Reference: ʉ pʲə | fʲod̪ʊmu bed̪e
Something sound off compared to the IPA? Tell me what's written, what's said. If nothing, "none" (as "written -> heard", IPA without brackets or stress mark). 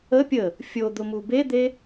ʉ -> ə